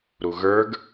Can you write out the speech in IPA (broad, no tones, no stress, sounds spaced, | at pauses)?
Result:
ɾ u ɣ ə˞ ɡ